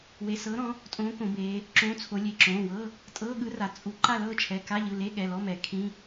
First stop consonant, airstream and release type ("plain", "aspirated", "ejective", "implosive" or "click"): ejective